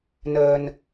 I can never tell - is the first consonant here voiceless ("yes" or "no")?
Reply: no